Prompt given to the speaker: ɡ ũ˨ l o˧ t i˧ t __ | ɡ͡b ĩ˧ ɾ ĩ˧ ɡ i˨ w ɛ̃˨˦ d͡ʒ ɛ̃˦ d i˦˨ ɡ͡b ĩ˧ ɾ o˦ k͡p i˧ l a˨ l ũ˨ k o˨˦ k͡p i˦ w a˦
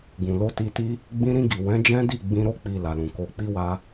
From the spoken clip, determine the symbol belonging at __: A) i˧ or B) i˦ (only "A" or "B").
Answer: B